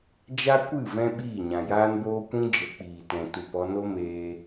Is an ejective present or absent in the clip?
absent